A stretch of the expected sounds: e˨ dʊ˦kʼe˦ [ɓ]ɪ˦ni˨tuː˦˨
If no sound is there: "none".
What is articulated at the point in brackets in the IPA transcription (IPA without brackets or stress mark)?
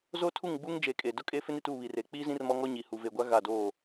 f